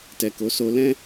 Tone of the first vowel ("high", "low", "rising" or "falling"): low